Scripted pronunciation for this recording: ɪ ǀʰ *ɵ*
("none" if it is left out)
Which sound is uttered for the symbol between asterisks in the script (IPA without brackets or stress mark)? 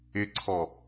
ɔ